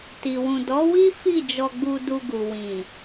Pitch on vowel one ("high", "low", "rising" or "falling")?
low